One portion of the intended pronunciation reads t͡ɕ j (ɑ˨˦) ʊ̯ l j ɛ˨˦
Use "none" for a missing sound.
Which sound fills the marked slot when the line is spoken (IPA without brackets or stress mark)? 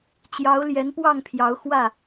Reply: ɑ˨˦